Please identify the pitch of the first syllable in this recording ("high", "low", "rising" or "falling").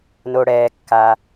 low